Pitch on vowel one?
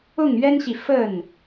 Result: falling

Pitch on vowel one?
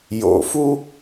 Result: low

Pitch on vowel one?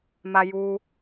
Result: high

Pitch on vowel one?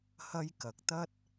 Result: high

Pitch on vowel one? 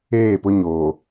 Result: falling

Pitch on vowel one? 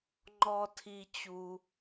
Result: low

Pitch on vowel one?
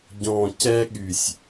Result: low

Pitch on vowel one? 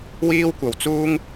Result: high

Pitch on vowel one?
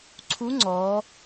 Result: rising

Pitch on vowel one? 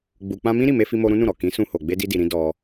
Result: low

